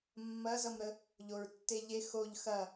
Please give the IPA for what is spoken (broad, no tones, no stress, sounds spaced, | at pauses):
mː ɐ z ʌ m ɾ ə | ʎ o ɹ tː e ʎ e x o ʎ x ɐ